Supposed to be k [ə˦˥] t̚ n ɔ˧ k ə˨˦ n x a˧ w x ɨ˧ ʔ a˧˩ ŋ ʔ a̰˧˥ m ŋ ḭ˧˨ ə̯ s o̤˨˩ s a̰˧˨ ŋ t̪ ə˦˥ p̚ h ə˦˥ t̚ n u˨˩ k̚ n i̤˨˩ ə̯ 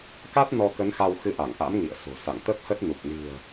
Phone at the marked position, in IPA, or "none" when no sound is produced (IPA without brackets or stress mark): a˦˥